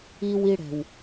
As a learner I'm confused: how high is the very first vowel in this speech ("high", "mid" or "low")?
high